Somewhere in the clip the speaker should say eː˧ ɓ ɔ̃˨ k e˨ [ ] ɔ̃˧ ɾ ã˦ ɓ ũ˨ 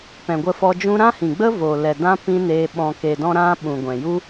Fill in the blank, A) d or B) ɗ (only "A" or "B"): A